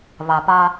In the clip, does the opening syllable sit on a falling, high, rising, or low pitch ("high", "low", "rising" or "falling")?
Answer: low